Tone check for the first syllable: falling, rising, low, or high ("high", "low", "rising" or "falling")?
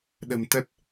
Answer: low